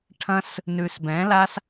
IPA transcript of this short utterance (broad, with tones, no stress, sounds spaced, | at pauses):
ʈʰ ɐ̃˦ s | n ʉ˨ s b ɛ̃˨˦ l a˦ s